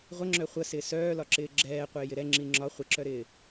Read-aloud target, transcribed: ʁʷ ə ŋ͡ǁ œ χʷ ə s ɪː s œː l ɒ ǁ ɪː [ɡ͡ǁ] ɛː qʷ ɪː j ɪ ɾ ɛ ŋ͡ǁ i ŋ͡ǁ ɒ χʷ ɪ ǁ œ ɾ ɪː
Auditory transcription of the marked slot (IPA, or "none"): ɡ͡ǁ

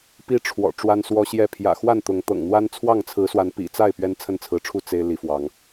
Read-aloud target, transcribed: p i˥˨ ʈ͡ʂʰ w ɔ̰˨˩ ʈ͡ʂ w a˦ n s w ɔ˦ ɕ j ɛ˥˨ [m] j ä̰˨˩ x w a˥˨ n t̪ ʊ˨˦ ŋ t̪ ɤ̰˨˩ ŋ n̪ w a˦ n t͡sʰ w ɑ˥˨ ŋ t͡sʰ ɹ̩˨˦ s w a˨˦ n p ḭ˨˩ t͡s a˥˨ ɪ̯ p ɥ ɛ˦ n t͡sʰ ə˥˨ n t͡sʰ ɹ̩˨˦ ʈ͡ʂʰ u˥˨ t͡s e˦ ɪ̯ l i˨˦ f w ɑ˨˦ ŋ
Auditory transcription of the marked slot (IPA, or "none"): pʰ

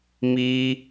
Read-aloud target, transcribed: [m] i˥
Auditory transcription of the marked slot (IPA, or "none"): m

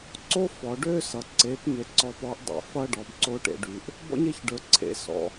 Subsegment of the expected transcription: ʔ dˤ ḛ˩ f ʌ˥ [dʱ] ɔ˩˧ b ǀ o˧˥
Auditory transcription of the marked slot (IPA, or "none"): ɖ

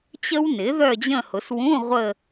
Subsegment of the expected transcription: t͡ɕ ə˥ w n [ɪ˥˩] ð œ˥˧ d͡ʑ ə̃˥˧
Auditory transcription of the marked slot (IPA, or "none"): ɪ˩˥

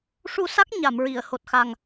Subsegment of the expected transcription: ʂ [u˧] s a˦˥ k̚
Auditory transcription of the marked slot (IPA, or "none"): u˧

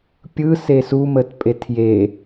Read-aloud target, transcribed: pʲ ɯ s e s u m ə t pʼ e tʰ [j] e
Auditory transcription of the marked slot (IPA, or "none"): j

